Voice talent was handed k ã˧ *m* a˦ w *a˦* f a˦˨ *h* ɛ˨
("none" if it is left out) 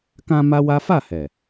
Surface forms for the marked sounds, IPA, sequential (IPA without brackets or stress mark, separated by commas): m, a˦, h